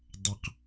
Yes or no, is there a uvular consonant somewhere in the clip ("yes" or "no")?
yes